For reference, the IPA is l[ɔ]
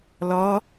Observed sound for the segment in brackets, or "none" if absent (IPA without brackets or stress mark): ɔ